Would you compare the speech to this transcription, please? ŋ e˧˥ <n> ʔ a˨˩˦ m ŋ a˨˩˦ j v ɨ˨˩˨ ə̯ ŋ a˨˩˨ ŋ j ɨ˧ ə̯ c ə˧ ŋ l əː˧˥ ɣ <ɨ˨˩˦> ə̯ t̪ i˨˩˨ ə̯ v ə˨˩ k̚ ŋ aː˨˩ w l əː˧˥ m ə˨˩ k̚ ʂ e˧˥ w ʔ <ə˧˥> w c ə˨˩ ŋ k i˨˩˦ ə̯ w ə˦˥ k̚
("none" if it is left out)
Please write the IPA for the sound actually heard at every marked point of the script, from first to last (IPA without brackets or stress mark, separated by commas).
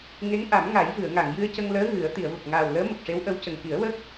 ŋ, ɨ˨˩˦, ə˧˥